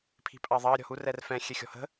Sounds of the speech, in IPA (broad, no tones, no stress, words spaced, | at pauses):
pʰi̤pʼɑðˤɑ ɾʲɔ̤hu rɛrfɛ̃ xʲɛxʲɔ̤hə̤